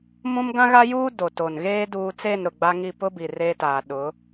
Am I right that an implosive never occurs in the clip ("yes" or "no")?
no